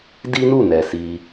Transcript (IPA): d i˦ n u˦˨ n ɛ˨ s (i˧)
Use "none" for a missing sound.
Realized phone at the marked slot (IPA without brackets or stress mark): i˧